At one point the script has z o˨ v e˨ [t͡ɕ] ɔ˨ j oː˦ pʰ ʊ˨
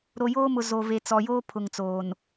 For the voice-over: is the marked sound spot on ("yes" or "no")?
no